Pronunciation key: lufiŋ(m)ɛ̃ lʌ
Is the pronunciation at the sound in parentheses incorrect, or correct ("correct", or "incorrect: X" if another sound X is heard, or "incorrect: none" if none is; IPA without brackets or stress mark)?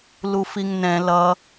incorrect: n